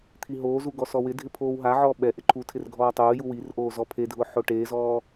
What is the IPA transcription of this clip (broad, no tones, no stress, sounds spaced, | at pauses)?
t̪ʰ i ɦ oː z u ɡ ɔ s ɔ w ɪ dʱ ɪ pʰ oː w ɦ a ʕ ɔː ɓ ɛ ʔ ɪ ǃʰ u tʰ ɪ r ɡʱ ɔː tˤ oː j u w i r ʔ oː z ɔ pʰ e dʱ ʊː ħ o ʈ eː z ɔː